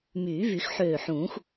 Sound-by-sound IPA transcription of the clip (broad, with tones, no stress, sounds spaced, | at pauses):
m yː˨˩˦ v y˨˩˦ x ħ øː˧˩ ħ ũː˨˩˦ x